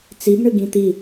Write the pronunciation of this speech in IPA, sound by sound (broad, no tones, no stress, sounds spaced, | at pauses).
t͡s i b ɳ ɨ ɡ ĩ t̪ i